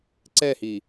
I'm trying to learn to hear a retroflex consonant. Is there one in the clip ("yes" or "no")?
no